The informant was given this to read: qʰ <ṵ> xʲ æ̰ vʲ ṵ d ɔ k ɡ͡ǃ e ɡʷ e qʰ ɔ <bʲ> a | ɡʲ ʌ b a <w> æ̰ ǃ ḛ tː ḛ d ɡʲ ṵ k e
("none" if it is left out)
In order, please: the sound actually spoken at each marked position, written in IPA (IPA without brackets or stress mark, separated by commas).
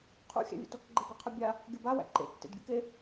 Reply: ṵ, bʲ, w